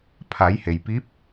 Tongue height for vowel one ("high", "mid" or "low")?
low